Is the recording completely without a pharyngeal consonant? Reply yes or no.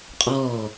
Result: yes